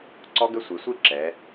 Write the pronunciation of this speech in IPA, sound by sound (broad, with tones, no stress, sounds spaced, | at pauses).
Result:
ǀ ɔ˦˥ ɡ ə˦˥ sʷ e˩˧ sʷ i˥˨ ǁ ɛ˩˧